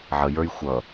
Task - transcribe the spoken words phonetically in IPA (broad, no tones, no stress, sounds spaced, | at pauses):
ʕ ə j ə˞ j xʷ ʌ